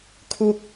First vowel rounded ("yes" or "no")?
yes